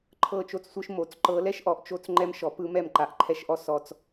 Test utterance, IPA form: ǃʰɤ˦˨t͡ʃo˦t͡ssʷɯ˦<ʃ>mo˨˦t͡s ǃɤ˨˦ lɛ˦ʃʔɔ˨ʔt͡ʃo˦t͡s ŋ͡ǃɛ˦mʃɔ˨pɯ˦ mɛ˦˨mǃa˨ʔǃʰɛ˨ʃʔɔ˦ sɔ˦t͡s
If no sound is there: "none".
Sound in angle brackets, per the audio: ʃ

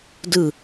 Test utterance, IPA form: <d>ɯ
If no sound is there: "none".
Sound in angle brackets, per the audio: d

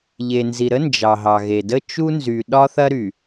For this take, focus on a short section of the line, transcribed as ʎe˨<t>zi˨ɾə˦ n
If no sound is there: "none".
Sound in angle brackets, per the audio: n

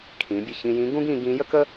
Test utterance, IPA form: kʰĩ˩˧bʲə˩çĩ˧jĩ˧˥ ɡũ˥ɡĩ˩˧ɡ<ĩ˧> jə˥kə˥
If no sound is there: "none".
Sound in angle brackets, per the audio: ĩ˧˥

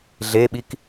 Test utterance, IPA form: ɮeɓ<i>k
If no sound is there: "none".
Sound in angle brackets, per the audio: i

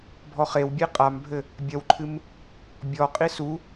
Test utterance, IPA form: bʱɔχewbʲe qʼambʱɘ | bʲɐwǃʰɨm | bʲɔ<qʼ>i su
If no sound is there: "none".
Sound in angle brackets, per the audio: qʼ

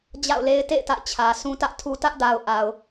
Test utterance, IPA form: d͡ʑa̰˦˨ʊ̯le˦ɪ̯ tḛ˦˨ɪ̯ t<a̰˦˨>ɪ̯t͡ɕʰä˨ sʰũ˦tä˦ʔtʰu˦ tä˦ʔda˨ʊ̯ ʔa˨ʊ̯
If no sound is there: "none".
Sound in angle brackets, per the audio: a̰˦˨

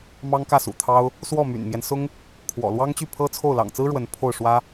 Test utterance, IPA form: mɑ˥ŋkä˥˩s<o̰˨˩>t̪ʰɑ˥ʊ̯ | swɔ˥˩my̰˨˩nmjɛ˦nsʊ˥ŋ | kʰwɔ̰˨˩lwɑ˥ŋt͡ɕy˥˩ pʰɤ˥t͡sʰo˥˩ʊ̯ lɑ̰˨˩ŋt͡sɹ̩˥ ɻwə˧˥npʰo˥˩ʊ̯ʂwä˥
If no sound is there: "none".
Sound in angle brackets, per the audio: ṵ˨˩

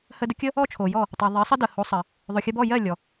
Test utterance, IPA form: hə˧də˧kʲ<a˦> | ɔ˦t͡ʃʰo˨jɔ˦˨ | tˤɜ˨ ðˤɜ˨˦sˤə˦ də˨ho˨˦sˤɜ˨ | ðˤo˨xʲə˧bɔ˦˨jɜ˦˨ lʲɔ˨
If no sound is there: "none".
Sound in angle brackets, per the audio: ə˦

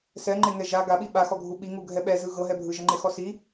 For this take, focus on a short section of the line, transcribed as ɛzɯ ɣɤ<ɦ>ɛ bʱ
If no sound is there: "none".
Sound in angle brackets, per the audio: ɦ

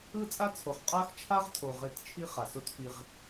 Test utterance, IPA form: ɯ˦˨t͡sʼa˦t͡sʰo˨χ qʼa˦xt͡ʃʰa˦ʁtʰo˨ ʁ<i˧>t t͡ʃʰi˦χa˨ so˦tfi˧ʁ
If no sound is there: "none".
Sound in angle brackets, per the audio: e˧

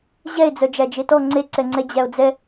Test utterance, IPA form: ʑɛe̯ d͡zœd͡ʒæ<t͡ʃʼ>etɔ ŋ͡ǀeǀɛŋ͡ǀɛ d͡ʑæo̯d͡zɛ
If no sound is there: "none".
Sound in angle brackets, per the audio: d͡ʒ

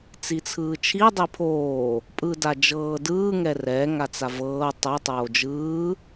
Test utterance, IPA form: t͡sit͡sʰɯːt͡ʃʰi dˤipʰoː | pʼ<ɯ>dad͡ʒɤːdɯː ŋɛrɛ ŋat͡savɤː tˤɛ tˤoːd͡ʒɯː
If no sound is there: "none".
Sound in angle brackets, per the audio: ɯ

